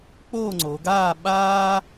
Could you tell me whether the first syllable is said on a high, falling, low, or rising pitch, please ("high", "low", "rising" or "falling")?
falling